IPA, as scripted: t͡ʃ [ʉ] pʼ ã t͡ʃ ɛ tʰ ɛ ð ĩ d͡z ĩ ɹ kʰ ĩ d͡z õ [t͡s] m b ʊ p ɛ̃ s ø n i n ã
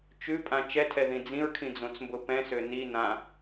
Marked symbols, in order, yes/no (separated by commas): yes, yes